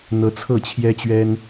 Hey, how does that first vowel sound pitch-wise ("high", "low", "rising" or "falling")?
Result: rising